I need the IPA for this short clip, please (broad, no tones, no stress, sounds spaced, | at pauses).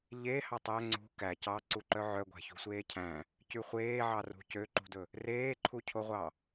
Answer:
ʎ e h ɑ tˤ æ ŋ͡ǀ ṳ k æ c ɑ ǀ u ǃ œ ʕ œ ɡʷ æ̤ ç ṳ sʷ eː cʰ æ̃ | c ʉ χʷ eː ʕ ɑ r ṳ c ø ǃ ṳ d ɵ | r eː ǃʰ u cʰ o ʁʷ ɑ